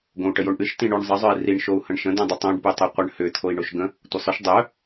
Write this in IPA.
ɡ õ u̯ ʈ ə j o ɳ ʔ ɨ ʃ t ĩ ɳ ʉ ɳ zˤ ə zˤ œ i̯ r i ɳ ʃ o u̯ h ə̃ ɳ ʃ ə̃ d œ̃ dˤ ʏ tˤ õ ɖ p ʉ tˤ œ qʷ ə ɳ h ʏ t̪ʰ o i̯ ɳ o ʃ ɡ ə̃ | tʷ ə sˤ ʏ ʃ dˤ œ

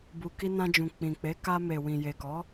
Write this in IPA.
b u˨ k i˧ n ã˧ d͡ʒ ũ˨ k͡p ĩ˨ k͡p e˨˦ k a˧ m e˨ w ĩ˨ j e˨ k ɔ˨˦

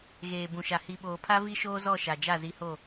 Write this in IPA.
ɣ eː˨ b ũ˨ ʃ a˨ h i˨ ɓ oː˨ pʰ a˦ v i˦ ʃ oː˦ z ɔ˦˨ ʃ a˨ d͡ʒ a˦˨ z i˨˦ h o˦˨

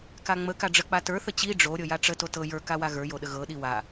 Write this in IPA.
k a ŋ͡m ə k a ɖ͡ʐ ə k͡p a t ə˞ θ ə t͡ɕ i ɖ͡ʐ o ɾʲ ɤ j a ʈ͡ʂ ə t o t ɤ j ə˞ k a w a ɣ ə˞ j o ɗ ə ɣ ɤ ɗ i w a

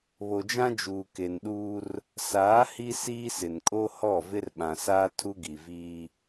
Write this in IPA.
β o˨ d͡ʒ ã˦ d͡ʒ uː˨ k e˨ n ɗ uː˦ r | s aː˨˦ h i˦ s iː˦ s ɪ˨ n kʼ o˦ h ɔ˦˨ v ɪ˦ r ɓ ã˨ s aː˦ tʰ u˦ ɡ i˨ v iː˦

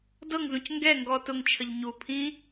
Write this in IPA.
d ɤ ŋ z ũ c ŋ ɡ ɛ ŋ ɡ ɔ t ʊ ŋ t͡ʃʰ ə ʎ ɲ u pʰ ĩ

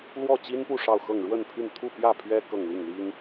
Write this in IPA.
l w ɔ˥˩ t͡ɕ i˥ n p u˥˧ ʂ ɑ˥˧ ʊ̯ x ɤ˥˧ ŋ ɻ w ə˥˧ n pʰ y˥˧ n t̪ʰ u˥˧ p j ä˥˩ pʰ ɥ ɛ˥ k ɤ˥˧ ŋ l i˥˩ ŋ l i˥ ŋ

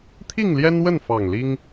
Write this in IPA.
t̪ʰ i˥˨ ŋ l j ɛ˦ n w ə˥˨ n f ɑ˨˩ ŋ l i˦ ŋ

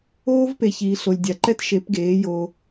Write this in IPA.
oː˦ v p e˨ ç iː˨ ɬ o˨ lʲ dʲ a˨ ǃ ɛ˦ t ʃ e˨˦ p ɡ eː˨˦ j o˧

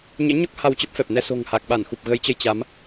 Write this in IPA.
ɲ ɛ̰˧˥ ɲ ɔ˦˥ k̚ h a˧ w t͡ɕ ə˦˥ p̚ f ɛ˨˩ p̚ n ɛ˧ s o̤˨˩ ŋ h a˨˩ k̚ ɓ a˧˩ n x u˨˩ p̚ ɣ ə˨˦ j t͡ɕ ə˧ j t͡ɕ a˨˦ m

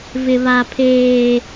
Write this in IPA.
v ɪ˨ β a˨ pʰ eː˨

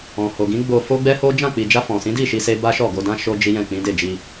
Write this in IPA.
ɔ̃˨ h o˨ ɡ ĩ˨˦ ɡ͡b o˧ f o˦ ɡ͡b ɛ˦ h o˦ d͡ʒ ã˦˨ k͡p i˨ d͡ʒ a˧ f ɔ̃˨ s ĩ˨˦ d i˦˨ ʃ i˧ s e˦ b a˦ ʃ ɔ˦˨ ɡ o˧ d ã˦ ʃ o˦ d͡ʒ i˦ j ɛ̃˦˨ k͡p ĩ˨˦ d e˦˨ d͡ʒ i˧

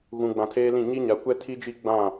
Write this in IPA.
ɣ ũ˨ ɡ͡b ã˨ tʰ eː˦ l ĩ˦˨ ɲ i˦ ɲ a˨ kʷ ɛ˦ tʰ i˦ d͡ʒ i˦ ɡ͡b ã˦˨

